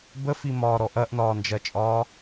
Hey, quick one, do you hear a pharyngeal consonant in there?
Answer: no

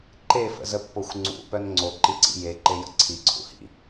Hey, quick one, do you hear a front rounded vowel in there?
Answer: yes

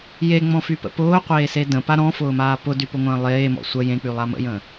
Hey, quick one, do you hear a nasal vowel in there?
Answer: yes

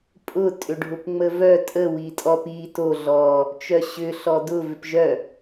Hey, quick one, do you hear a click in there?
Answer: no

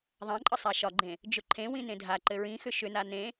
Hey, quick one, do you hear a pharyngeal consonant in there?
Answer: no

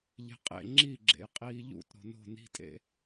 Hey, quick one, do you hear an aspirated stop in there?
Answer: no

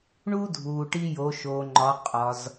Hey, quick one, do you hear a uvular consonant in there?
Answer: yes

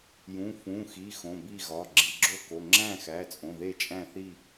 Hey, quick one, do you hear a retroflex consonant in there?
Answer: no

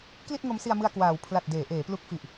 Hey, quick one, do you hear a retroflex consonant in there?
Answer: no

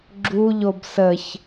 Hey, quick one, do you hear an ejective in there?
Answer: no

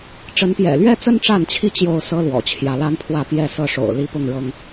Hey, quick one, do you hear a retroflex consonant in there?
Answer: yes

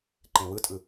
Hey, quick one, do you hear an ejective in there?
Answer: yes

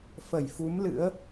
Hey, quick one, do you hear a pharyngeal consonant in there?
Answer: no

